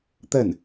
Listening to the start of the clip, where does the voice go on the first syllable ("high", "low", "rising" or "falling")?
falling